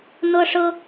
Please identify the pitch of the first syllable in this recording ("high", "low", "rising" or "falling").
high